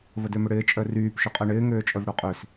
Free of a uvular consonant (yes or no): no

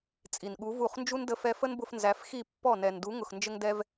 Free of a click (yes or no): yes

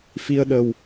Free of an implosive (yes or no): no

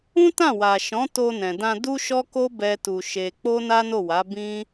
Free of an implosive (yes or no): yes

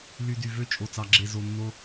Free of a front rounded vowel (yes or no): no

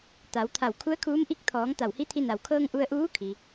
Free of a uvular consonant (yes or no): yes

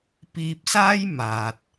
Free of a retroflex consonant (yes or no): yes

